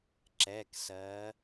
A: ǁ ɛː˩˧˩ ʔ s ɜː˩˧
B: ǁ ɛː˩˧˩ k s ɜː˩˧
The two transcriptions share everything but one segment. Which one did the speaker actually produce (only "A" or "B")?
B